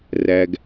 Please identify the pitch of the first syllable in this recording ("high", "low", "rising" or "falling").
low